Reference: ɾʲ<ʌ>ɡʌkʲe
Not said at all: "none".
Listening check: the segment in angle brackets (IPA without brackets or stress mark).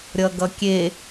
ʌ